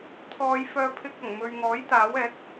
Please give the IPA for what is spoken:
t̪ʰɔː˨˧j fœː˧ pʰɪ˧k̚ ɐ˨˩ŋmɵ˨ɥŋɔː˨˥j t̪aː˨˥wɛː˨˥k̚

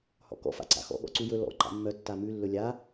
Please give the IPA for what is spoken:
hɔ̰kɔ̰ fa̰ǀa̰xɔ̰ ɠɔ̰ǀujɵ lɔ̰ ǃa̰mːœ tːamʉ lːɵlʲa

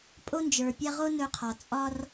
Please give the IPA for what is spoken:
pʼo˦nd͡ʒə˞˨pʲa˦ ʁo˦ nɵ˦qʰɒ˨ t͡sʼɒ˦r

